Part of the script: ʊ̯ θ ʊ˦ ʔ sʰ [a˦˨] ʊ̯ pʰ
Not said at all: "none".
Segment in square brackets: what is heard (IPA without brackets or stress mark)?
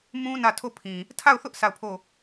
a˦˨